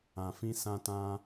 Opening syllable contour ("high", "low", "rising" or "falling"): low